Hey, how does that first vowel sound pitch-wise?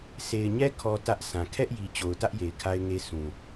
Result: low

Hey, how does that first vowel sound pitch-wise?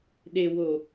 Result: low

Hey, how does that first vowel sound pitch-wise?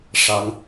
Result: rising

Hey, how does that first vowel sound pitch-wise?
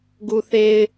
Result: low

